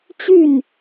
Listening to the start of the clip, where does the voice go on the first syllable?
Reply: falling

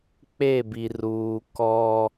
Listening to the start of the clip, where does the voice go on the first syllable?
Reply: falling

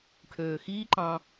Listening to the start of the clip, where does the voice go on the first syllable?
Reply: low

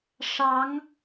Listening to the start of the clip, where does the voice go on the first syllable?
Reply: rising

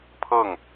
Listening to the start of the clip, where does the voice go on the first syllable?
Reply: falling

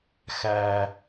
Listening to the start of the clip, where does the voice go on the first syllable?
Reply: low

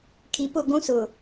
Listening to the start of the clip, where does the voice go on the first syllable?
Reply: low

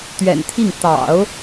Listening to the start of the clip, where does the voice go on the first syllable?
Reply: low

